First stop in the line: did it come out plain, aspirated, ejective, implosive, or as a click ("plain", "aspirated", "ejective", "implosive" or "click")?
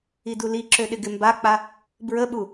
plain